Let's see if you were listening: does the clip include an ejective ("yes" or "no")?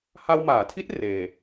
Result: no